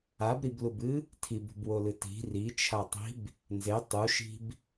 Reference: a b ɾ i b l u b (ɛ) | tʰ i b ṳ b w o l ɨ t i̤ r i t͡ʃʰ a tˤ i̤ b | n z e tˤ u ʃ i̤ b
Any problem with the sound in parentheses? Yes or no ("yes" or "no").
yes